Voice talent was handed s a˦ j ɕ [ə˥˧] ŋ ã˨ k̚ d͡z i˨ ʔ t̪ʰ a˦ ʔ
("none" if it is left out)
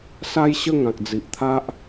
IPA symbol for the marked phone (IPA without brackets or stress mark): ə˥˧